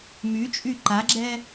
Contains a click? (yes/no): yes